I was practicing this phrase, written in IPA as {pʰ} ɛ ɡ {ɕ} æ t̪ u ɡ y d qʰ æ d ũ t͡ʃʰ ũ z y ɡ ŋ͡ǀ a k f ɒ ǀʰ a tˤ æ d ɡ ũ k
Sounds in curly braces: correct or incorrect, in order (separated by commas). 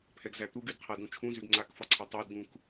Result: correct, incorrect